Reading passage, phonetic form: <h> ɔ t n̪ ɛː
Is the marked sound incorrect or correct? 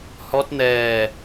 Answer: correct